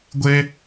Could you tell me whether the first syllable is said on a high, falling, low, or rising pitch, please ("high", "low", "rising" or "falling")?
high